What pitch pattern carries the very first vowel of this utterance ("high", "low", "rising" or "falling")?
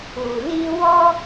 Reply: low